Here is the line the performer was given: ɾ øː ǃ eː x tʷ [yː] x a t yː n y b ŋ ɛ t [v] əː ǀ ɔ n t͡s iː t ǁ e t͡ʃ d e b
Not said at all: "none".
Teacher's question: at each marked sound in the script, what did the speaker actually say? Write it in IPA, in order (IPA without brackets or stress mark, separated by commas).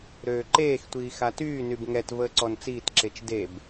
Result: iː, v